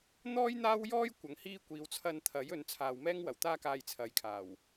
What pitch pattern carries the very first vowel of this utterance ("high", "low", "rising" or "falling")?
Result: high